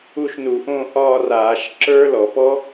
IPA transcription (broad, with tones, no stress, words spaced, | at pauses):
u˥˧ʃnu˧˩˧ʔõ˥˧ ʔɒː˥˧raː˧˩˧ʃ ǁə˞˦˥ lɔ˧˩˧ pɔ˦˥